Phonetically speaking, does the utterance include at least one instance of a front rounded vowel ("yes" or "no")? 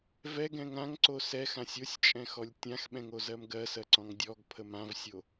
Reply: no